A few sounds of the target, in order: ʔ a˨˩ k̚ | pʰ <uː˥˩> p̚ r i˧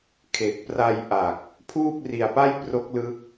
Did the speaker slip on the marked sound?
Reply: no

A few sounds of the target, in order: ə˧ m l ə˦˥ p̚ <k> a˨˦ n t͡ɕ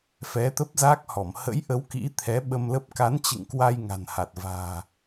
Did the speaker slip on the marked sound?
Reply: no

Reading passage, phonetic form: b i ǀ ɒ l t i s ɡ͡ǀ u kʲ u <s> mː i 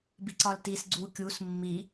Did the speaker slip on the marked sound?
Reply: no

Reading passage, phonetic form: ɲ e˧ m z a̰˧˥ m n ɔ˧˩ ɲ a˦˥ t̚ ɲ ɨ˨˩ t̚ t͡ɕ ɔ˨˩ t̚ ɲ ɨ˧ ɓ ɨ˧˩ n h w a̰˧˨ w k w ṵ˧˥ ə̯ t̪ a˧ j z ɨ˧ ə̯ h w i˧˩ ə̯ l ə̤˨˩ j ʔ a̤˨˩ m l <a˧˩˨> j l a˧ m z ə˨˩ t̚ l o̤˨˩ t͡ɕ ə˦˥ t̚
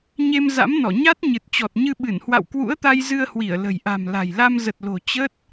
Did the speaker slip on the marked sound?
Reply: yes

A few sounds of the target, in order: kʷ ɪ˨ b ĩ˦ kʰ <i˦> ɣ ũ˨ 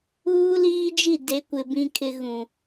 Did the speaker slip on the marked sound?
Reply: yes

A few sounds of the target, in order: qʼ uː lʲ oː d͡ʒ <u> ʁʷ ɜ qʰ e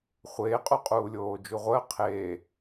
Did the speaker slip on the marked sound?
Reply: no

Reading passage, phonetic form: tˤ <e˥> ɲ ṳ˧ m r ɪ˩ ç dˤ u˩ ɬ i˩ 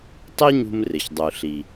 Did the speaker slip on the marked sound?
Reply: no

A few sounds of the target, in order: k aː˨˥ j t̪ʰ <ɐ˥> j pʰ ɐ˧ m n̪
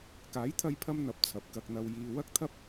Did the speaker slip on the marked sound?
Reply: yes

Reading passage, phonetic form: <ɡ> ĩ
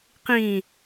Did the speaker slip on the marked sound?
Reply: yes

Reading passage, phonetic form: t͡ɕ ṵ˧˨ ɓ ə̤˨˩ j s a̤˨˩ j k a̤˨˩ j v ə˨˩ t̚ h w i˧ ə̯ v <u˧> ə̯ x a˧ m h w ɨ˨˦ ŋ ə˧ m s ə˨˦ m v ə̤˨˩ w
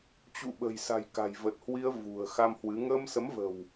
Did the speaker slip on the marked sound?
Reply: yes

